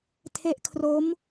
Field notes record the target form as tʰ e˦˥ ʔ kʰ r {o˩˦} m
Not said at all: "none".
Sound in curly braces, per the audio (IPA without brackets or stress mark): o˦˥